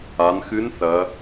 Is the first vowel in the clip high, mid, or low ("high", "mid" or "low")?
low